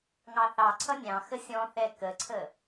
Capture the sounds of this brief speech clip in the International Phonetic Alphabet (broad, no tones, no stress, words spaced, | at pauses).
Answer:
ŋɑθɑǀʰʌ nʲɑ̃ xəsʲɔ̃θɛ kəǀʰə